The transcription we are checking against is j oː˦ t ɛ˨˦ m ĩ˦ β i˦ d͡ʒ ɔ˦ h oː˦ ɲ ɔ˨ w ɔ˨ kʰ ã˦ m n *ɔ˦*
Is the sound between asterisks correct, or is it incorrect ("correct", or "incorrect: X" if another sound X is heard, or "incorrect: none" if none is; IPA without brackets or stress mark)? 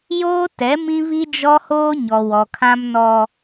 correct